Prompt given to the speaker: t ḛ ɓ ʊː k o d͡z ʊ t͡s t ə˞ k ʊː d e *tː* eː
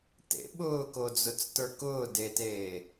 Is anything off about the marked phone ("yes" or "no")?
yes